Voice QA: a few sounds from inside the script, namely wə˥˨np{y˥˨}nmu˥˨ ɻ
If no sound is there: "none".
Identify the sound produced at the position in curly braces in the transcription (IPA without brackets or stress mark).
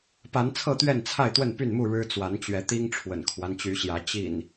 y˥˨